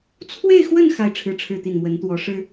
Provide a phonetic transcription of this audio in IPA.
t͡sʰ w e˥˧ ɪ̯ x w ə˥˧ n x a˥˧ ɪ̯ ʈ͡ʂʰ ɻ̩˥˧ ʈ͡ʂʰ ɻ̩˥˧ t̪ i˥˩ n m w ə˧˥ n t̪ w ɔ˧˥ ʂ ɻ̩˥

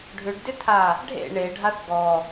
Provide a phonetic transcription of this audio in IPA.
ɖʱ ʏ ɖ d ʏ tʰ a | ɖʱ ḛ ɳ e ɖʱ a θ ɡ ɔ

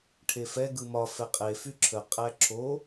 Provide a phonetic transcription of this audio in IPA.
ʈʰ e f ɛ ɡ ɯ m ɒ f ɛ qʼ e f y ǁʰ ə qʼ æ ǁʰ o

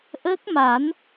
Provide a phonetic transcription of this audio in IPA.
ʔ əː˦˥ k̚ m a˨˩˦ n

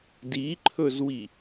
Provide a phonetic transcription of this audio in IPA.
d i ǃʰ ɵ z w i

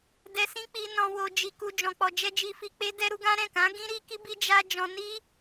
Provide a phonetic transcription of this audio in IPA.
d ɛ˧ s ĩ˦ k͡p i˧ n ɔ̃˧ w o˧ d͡ʒ i˧ k u˧ d͡ʒ ɔ̃˨ k͡p ɔ˨ d͡ʒ ɛ˧ d͡ʒ i˧ f i˧ k͡p e˦ d ɛ˦ ɾ u˦ ɡ ã˦ ɾ ɛ̃˦˨ k ã˨˦ ɡ ĩ˦ ɾ i˦ k i˦ b i˦ d͡ʒ a˧ d͡ʒ ɔ̃˧ n i˦

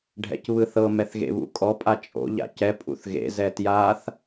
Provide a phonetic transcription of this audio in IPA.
ɖʱ ɛ̰ c β ɯ θ ɤ m ɛ θ ɣ ḛ β ṵ kʼ ɔ pʼ a t͡ʃʼ o̰ ʎ a̰ c ɛ pʼ ṵ θ ɣ ḛ z ɛ t j a θ

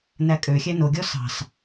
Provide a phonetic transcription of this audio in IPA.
n æ kʼ ø xʲ æ n o ɡʲ ɔ s ɑ̤ s

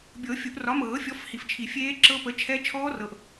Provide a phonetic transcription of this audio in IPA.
bʲ ɤ˨˩˦ fʲ u˨˩˦ ʔ r ɒ˨˥ m ɤː˨˩˦ fʲ ɔ˨˥ f h i˨ f t͡ʃʰ i˨˩˦ fʲ eː˦˥ ǁ ɤ˦˥ p ə˨˥ t͡ʃʰ ɛ˦˥ t͡ʃʰ ɔː˦˥ r ɤ˨ ʔ

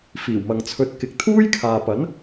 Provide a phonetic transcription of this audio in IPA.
f iː˨˩ w m ɐ˨ ŋ t͡sʰ ɵ˧ t̚ k ɪ˨˥ k̚ t̪ʰ uː˥ j kʰ aː˨ p ɐ˨˥ n

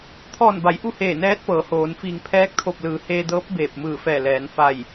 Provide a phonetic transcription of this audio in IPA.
t̪ʰ ɔː˧˩ n b a˩˧ j ʔ u˥˨ h eː˧˩ n ɛː˧˥ t̚ p ɤː˩˧ h oː˩˧ n f iː˧˩ ŋ pʰ ɛː˧˥ k̚ t̪ʰ o˧˩ p̚ l ɯː˩˧ h eː˧ d ɤː˧˥ p̚ b eː˧˩ p̚ m ɯː˧˩ f ɛː˧˩ l ɛː˩˧ n f a˧˩ j

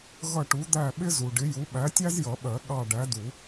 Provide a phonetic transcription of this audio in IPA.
ɣ ʌ˦˨ ʈ u˨˥ d̪ æ˦˨ ɓ ɪ˥ z u˨ ɖ ɪ˨˥ j u˨˥ ɓ æ˨˥ tʲ æ˥ z j ʌ˨˩˦ ɓ ɜ˨˩˦ ɠ ɑ˦˨ ɖ æ˨˥ d u˨˩˦

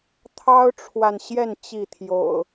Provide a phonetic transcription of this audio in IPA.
t̪ʰ ɑ˦ ʊ̯ ʈ͡ʂʰ w a˨ n ɕ j ɛ˥˨ n t͡ɕ i˥˨ t̪ʰ j o̰˨˩ ʊ̯

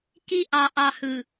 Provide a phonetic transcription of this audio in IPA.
k i˦ ʔ ɑ˨ ʔ ɑ˨ h ɯ˨

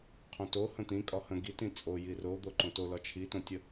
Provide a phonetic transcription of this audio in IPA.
qʰ õ t o h ə̃ t̪ ĩ kʼ ɒ h ə̃ ɡ i t ĩ t͡sʼ o j i r o d̪ o ǃ õ t o l ɒ t͡ʃʰ i t õ tʲ ə

